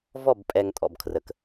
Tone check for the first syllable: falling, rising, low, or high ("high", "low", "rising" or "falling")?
falling